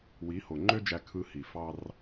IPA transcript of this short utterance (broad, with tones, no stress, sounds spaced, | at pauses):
w i˨˦ h o˨ ŋ͡ǃ ø˦ d͡ʒ æ˧ kʰ ɯ˧ h i˨ f ɑ˧ r